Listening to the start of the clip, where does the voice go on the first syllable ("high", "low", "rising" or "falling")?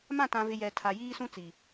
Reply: falling